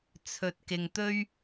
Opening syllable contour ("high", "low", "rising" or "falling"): low